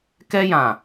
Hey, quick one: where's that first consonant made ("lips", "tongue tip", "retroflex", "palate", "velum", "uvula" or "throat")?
velum